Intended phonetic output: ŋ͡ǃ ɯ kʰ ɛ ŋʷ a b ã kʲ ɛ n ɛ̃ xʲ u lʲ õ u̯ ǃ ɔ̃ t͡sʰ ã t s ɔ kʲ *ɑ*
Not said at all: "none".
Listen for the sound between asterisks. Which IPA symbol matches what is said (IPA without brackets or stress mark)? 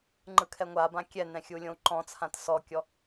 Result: ɔ